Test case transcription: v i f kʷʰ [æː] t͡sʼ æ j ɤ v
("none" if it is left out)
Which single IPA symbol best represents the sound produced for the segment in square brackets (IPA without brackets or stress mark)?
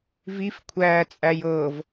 æː